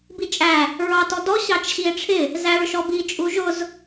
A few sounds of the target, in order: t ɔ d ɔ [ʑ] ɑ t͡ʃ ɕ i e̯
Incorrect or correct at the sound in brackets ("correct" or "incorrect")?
incorrect